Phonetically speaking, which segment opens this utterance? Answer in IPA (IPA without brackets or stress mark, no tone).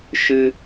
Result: ʃ